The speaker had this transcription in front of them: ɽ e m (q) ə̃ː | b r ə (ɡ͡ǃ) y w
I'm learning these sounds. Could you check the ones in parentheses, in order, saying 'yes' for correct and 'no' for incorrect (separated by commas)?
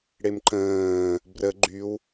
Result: no, yes